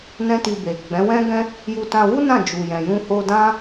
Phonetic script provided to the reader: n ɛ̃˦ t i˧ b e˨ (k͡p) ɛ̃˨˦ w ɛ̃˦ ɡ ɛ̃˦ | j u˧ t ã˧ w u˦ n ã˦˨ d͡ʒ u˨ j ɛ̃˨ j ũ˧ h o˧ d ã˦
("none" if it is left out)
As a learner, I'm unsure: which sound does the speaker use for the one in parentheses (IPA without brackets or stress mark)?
ɡ͡b